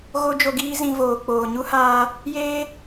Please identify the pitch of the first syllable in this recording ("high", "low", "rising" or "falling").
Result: high